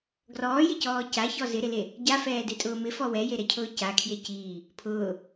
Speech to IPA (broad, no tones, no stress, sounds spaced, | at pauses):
ɡ r ɔː j ɪ c ɔː c a ç ɔ z ɪ ɾ ɪ l e | ɟ a f ɛː d e tʼ ʊː m ɪ f ɔ w ɛ j e ɾ ɛ cʰ ʊː c a kʰ j e c iː | pʰ ʊː